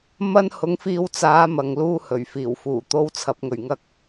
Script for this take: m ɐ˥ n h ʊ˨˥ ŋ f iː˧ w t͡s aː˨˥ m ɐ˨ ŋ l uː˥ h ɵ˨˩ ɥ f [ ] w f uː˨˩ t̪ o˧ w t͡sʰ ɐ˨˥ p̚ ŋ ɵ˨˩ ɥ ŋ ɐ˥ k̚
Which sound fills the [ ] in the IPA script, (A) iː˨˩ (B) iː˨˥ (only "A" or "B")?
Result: A